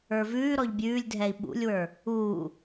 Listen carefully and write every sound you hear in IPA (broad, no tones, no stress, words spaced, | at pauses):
ə˞vʉː ɾɔʎbʲʉːlʲdʱɛi̯ ɓṵlʲwə˞ | uː